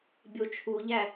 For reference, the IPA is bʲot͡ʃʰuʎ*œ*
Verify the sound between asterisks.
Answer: incorrect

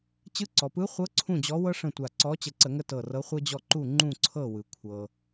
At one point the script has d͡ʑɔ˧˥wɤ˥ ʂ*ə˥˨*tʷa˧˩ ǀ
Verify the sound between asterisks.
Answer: incorrect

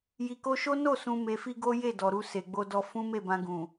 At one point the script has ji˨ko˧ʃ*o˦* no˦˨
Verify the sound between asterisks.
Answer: correct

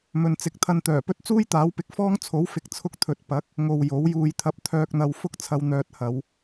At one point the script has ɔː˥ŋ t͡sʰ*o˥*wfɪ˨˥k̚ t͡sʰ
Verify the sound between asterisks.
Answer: incorrect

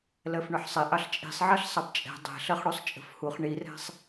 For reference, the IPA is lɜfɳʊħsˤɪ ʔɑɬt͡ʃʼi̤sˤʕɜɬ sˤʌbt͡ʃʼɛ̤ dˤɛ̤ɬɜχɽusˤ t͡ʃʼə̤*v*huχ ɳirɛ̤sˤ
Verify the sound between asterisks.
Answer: incorrect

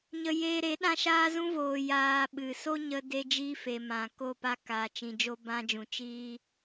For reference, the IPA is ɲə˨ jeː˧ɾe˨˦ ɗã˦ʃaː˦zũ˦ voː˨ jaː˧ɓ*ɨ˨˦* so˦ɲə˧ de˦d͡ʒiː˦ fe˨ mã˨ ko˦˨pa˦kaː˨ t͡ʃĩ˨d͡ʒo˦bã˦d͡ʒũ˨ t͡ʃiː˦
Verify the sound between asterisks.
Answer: incorrect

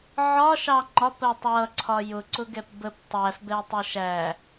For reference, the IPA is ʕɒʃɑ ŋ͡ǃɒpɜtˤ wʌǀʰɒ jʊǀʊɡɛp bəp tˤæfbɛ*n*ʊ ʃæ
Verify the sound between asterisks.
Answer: incorrect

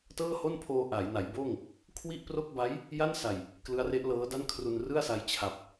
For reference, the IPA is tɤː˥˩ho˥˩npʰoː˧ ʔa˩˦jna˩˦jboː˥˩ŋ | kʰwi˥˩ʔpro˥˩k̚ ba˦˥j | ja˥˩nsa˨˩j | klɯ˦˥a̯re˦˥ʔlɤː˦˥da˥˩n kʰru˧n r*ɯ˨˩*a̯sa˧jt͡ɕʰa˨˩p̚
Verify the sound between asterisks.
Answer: incorrect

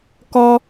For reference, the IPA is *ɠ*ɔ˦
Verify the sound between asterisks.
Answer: incorrect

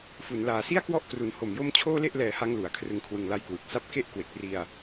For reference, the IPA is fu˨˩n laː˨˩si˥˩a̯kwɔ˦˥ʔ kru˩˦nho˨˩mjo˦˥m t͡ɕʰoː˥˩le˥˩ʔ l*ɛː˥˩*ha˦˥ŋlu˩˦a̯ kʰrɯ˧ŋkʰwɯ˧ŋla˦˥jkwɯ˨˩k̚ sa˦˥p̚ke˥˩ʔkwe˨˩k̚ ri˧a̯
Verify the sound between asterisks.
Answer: incorrect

